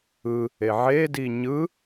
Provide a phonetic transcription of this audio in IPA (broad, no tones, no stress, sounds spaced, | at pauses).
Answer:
ɯ | e ʕ e d i ɲ ɯ